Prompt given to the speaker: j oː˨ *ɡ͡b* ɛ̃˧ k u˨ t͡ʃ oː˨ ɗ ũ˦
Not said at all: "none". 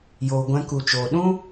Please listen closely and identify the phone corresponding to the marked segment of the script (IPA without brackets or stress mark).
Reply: ɡʷ